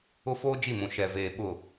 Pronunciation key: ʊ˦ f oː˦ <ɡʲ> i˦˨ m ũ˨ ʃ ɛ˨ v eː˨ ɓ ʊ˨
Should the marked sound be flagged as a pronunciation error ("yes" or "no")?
yes